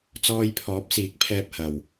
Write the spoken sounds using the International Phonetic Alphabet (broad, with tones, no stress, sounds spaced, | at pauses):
t͡s ɔː˧ j pʰ ɔː˨˥ p̚ s iː˨˥ k̚ pʰ ɛː˧ p̚ h ɐ˨ w